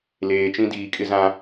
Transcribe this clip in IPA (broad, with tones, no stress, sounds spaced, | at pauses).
l eː˨ t͡ʃ ĩ˦ d iː˨ kʼ ɪ˦ z ã˦